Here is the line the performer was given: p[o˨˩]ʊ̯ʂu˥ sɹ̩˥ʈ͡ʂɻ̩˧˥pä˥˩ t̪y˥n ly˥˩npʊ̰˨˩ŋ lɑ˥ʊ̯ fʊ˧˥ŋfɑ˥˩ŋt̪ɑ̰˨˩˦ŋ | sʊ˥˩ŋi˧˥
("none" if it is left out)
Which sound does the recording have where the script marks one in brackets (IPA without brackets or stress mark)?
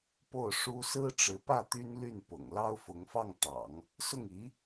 o˥˩